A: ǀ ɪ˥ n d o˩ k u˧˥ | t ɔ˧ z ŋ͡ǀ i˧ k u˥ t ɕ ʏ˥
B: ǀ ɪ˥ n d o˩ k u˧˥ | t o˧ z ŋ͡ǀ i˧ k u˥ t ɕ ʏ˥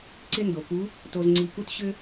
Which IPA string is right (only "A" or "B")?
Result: B